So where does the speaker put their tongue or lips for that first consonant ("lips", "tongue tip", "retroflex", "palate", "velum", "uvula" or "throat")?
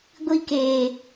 velum